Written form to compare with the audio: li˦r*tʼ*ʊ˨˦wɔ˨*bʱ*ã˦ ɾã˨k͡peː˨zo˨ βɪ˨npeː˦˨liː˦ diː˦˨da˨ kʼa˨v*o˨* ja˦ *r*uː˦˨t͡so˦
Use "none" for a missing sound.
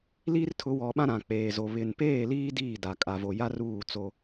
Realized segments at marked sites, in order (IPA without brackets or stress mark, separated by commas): tʰ, ɓ, o˨, r